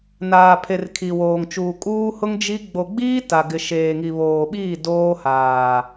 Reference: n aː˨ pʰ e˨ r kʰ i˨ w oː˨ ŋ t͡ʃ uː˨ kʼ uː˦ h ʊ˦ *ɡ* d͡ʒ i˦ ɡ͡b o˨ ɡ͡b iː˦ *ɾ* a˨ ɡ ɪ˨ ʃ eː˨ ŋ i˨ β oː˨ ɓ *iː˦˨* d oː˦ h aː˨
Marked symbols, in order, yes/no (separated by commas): no, no, yes